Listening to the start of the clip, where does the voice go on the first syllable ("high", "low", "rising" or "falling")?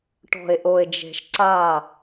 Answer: low